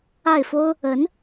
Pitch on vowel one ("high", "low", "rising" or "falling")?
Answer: falling